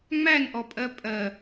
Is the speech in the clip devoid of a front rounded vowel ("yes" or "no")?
yes